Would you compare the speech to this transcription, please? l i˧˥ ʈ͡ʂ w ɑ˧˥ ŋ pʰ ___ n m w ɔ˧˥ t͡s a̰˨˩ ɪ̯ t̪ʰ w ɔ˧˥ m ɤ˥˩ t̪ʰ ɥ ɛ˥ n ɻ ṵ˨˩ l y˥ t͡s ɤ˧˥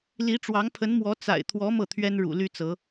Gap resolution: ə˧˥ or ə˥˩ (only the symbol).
ə˧˥